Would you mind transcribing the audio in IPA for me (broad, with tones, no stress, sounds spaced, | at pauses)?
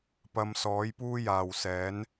p ɐ˨˧ m s ɔː˨˥ j p uː˥ j aː˨ w s ɛː˨˥ n